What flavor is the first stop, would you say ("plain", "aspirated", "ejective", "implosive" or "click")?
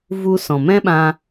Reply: implosive